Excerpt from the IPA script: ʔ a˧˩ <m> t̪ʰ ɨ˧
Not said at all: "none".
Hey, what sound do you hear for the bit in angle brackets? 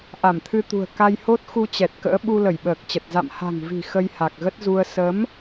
m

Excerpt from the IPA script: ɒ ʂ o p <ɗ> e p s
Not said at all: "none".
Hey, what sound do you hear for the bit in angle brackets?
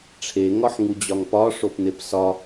n̪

